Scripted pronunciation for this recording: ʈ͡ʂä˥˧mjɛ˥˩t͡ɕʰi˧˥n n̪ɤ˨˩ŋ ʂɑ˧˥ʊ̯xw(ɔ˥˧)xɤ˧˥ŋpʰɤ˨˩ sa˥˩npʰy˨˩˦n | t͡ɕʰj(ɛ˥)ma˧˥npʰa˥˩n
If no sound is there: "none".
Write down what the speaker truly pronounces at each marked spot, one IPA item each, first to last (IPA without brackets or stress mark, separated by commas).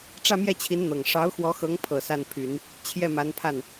ɔ˧˥, ɛ˥˩